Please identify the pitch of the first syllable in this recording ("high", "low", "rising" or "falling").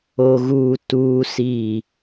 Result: high